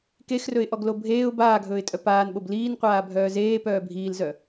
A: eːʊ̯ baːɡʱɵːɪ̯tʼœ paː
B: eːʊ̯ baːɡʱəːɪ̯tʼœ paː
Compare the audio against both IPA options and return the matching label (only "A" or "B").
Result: A